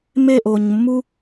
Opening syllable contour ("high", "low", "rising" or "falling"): falling